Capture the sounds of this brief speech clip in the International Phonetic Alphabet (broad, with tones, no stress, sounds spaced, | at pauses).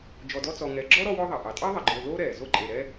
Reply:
d͡ʒ ɔ˨ d ɔ˦ t͡s ɔ˨ ŋ ɛ˨ ɡ͡ǁ ɔ˥ ɾ ɔ˦ w ɔ˦ ðˤ ɑ˩ ʔ ɑ˩ tʼ ɑ˥ ðˤ e˨ ɡ͡ǃ oː˨ l oː˥ ɾ ɛː˩ z o˦ ǃʼ e˨ ɾ ɛː˦